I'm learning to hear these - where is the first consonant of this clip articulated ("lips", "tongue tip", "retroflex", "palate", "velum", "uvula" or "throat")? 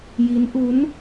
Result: palate